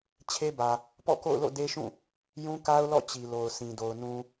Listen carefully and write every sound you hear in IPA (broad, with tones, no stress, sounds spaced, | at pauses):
t͡ɕʰ e˦ b ä˨ | p ɔ̰˦˨ k o̰˦˨ ʊ̯ l o̰˦˨ d e˦ ʃ ũ˦˨ | j ũ˦ k a˦ ʊ̯ l ɔ̰˦˨ t͡ɕ i˨ l o˨ ʊ̯ s ĩ˨ d o˨ ʊ̯ n ũ˨